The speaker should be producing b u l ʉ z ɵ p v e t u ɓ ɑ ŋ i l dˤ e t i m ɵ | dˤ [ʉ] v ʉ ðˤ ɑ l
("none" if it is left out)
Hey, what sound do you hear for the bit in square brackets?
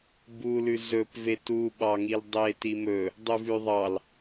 ʉ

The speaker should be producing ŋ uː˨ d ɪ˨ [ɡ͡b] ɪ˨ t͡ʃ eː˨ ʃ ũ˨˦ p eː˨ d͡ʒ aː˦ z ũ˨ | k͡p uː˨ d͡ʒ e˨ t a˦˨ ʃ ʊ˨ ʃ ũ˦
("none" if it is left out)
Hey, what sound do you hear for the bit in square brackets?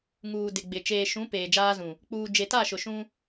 ɡ͡b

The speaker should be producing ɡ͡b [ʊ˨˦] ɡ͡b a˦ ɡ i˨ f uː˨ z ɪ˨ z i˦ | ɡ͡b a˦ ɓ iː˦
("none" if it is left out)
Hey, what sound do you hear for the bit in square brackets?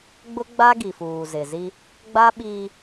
ʊ˦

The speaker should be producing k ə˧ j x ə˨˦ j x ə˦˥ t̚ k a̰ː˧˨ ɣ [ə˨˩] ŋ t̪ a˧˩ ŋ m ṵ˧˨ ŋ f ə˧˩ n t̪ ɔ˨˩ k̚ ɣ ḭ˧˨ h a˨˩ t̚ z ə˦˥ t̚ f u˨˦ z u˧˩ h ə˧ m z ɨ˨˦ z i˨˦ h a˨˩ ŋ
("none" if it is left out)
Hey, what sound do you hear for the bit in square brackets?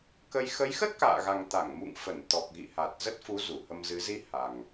a˨˩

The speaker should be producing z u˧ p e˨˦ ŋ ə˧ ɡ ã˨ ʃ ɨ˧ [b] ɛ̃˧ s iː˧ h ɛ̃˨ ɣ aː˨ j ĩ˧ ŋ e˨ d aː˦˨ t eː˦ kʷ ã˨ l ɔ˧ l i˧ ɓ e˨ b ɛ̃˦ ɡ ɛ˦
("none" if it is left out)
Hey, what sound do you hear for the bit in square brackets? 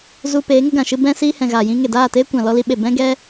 b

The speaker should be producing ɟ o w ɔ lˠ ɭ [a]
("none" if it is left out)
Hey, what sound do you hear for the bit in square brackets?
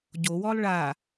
a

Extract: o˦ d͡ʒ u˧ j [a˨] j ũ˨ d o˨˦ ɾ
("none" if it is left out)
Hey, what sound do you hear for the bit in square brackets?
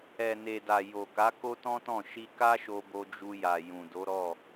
a˨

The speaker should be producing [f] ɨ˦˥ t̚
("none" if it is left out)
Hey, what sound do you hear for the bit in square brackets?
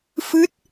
f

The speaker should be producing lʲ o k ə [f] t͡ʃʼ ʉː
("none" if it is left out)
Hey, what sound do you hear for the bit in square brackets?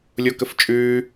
f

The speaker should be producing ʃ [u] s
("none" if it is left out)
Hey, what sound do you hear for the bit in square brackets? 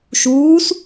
uː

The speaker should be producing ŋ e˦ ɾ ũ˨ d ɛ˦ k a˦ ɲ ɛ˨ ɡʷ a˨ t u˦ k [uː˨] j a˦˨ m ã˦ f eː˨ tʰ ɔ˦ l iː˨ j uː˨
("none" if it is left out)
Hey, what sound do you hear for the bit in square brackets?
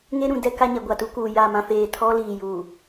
uː˨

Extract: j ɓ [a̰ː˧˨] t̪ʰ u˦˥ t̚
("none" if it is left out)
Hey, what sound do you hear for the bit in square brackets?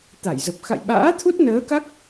a̰ː˧˥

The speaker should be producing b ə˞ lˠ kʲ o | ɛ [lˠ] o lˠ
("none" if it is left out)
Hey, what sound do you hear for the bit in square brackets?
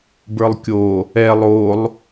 lˠ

